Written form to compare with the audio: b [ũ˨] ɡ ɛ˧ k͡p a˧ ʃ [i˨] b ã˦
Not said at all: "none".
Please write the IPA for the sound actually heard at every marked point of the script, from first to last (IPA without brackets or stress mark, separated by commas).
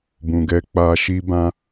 ũ˨, i˦